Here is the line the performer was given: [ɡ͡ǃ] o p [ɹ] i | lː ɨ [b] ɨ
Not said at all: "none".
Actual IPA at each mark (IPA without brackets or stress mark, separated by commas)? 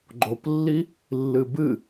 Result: ɡ͡ǃ, lː, b